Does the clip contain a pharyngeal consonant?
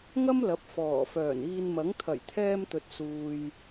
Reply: no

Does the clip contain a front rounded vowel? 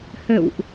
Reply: no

